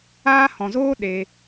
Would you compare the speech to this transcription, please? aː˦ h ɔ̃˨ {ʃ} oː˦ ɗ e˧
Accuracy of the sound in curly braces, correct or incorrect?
incorrect